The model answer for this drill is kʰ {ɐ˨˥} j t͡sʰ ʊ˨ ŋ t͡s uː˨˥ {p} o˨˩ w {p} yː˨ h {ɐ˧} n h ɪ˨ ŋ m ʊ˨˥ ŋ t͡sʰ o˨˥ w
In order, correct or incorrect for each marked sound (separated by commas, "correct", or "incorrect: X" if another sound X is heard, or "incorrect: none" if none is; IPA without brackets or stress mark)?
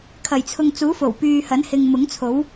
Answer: incorrect: ɐ˨˩, incorrect: f, correct, incorrect: ɐ˨˥